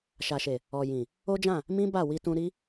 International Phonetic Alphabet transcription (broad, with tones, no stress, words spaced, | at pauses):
ʃa˨ʃe˨ | ɔ˨jĩ˨ | o˦d͡ʒã˦˨ | mĩ˦ ba˦˨wi˧tũ˧ ɾi˦